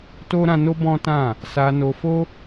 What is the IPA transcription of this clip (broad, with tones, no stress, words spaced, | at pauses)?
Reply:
to˦ɾã˧no˦ bɔ̃˦tã˦˨ | sa˧no˧fo˦